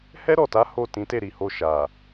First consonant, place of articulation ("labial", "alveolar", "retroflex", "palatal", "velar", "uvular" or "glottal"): glottal